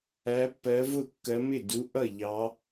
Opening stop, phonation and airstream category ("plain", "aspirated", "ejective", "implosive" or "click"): plain